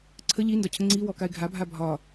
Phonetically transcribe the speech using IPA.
ǀʰ ə ʎ i n d ɒ cʰ ə ŋ͡ǀ i w ɔ k a ɪ̯ ɡʱ a bʱ a bʱ ɒ

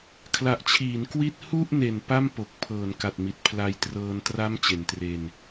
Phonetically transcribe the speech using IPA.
kʰ l a˨˩ ʔ t͡ɕʰ iː˩˦ n k w i˥˩ t̚ h u˥˩ ʔ n e˨˩ n p a˥˩ m p o˨˩ k̚ pʰ ɤː˩˦ n k a˨˩ t̚ m i˨˩ t̚ pʰ l a˧ j t r ɤː˧ n t r a˦˥ m t͡ɕ e˨˩ n t r e˧ n

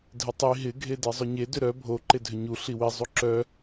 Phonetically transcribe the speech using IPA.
dʱ ɪ tˤ i ɦ ɪ ɡʱ e d e zˤ ʏ ɲ e d ʏ ɾ œ bʱ o ǃ e dʱ ʏ ɲ u ɬ i w i zˤ u ǁ œ

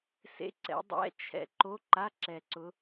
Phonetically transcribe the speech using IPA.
s ḛ˧˥˧ ǀ ɛ̰˨˦ dˤ ɛ̰˧˥˧ t͡ʃʰ ɛ̰˨˦ ǃ o˧˥˧ ǃ a˧˥˧ ǁ ɛ˨˩ ǀ ʊ˨˦

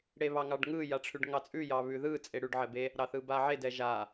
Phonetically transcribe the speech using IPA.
ɽ e β ɑ ŋ ɑ ɖ ŋ ɯ j a ʈ͡ʂʰ ʉ ɖ ŋ ɑ t͡sʼ ʉ j ɑ β ʉ ð ɯ t͡sʼ e ɽ ʉ ɖ ʕ ɛ b e | ɾ ɑ θ ɯ b a ʕ e d ɛ ʒ a

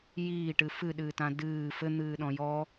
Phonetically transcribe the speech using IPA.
j iː ʈ ɨ f ɨ ɗ ɨː t ã d ɨː f ɘ n̪ ɨː ɗ ɔ̃ j ɔ

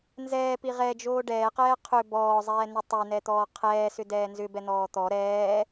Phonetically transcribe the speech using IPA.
n z ɛː p i ʁ ɛ d͡ʒ oː ɖ ɛː q ɛː qʰ ʏ b ɔː zˤ ɛː n ʏ tˤ ɛ n ɛ t̪ ɔː qʰ ɛː s ʏ d ɛː n z ʏ b ɛ n̪ ɔː t̪ ɔ ɾ ɛː

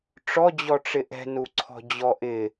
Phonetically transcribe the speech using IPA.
ʈ͡ʂ ɔ d͡ʑ ɔ ʈ͡ʂ ɪ ʔ ɛ̤ n u ǀʰ ɔ̤ d͡ʑ ɔ ʔ ɪ

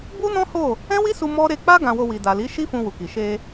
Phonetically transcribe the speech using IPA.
b u˦ n ɔ̃˦ h o˦˨ | ɛ̃˦ w i˦ s u˧ m ɔ˦ ɾ e˧ k͡p a˦ ɡ ã˧ w o˧ w i˨ d a˨ l i˨˦ ʃ i˦ f ũ˧ w u˨ k i˨ ʃ e˧

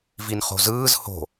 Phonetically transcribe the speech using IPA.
v i n χ o̤ z ɯː z h o̤

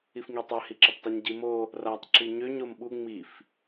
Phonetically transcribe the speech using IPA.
i f ŋ i tˤ ø h i ǁ ʌ p tˤ i ɲ ɟ i m o | r a tˤ ǁ i ɲ ø ɲ o m ɓ u ŋ͡m i f

